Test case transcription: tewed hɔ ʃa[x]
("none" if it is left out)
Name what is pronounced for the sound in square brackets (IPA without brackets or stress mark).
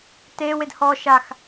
x